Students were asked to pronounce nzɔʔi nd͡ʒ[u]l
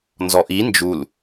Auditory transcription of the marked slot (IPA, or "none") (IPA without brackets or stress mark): u